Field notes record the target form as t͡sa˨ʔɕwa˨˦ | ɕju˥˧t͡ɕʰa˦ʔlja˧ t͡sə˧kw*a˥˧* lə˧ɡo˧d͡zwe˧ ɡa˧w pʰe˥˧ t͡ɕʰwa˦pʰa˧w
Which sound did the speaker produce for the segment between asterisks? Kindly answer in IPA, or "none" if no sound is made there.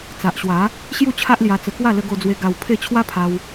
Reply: a˥˧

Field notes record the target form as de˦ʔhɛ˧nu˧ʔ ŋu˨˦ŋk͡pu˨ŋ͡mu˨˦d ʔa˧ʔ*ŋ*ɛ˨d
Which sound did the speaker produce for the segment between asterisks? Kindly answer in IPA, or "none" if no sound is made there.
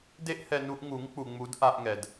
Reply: ŋ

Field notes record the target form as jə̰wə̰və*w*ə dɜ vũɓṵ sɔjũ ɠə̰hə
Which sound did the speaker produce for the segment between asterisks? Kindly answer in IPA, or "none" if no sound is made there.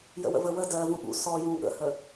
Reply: w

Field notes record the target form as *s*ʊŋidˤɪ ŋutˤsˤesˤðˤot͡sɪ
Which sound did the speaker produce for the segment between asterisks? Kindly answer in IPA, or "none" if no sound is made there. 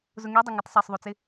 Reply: z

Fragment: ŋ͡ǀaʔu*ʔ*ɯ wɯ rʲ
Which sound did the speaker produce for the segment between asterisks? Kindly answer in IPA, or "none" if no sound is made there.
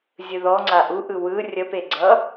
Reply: ʔ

